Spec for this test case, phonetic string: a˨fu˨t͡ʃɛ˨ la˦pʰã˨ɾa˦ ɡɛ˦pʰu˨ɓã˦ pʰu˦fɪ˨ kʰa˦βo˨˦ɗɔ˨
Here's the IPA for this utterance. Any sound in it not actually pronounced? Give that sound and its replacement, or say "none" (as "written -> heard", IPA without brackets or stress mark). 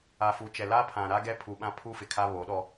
ɔ˨ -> ɔ˦